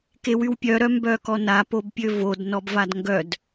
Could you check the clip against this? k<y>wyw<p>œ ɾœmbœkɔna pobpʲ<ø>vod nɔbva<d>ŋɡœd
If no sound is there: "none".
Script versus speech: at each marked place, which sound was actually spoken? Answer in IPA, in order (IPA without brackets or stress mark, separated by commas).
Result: e, pʲ, ø, d